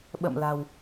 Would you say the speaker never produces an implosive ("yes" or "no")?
no